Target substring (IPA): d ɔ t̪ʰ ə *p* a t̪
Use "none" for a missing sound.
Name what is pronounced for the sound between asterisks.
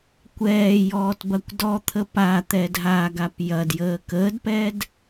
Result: p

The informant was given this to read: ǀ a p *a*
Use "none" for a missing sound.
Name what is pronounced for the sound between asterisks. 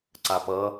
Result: ʌ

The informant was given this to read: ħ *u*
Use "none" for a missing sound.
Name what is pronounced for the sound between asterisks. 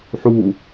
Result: u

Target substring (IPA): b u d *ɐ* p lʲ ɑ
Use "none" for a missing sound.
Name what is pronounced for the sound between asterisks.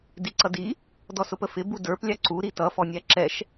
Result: ə˞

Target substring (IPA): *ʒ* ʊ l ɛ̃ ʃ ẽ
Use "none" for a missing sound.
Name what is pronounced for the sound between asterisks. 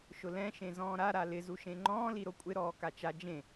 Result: ʃ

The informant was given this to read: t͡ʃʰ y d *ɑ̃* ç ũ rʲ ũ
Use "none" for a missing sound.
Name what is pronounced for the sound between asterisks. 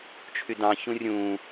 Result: ɑ̃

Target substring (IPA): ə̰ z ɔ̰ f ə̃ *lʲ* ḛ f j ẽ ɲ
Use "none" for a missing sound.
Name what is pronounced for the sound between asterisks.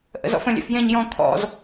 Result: lʲ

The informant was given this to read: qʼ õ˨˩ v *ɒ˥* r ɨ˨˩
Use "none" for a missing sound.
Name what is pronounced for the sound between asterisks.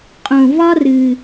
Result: ɒ˥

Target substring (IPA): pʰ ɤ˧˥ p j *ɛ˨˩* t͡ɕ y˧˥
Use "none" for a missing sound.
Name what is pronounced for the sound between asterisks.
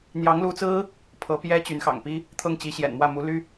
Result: ɛ˥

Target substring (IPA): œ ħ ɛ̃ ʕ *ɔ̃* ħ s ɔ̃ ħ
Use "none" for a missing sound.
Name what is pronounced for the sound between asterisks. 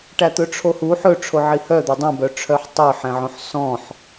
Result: õ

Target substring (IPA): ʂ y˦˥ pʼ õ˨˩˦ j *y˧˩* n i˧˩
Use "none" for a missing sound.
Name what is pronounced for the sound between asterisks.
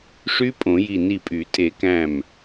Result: i˧˩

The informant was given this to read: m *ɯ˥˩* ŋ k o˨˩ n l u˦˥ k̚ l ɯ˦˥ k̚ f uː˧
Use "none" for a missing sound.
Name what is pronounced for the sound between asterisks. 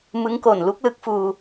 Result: ɯ˦˥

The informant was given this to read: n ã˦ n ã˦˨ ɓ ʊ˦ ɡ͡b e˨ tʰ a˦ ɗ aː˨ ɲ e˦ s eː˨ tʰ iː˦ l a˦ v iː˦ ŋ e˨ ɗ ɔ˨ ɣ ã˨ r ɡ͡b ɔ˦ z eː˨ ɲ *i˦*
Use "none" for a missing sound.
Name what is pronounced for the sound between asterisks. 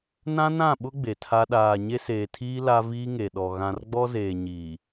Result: i˨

